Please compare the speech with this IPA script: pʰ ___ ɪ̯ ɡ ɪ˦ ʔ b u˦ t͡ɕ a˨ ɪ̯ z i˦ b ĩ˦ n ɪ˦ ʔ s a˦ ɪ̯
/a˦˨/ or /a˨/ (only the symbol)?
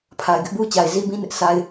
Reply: a˨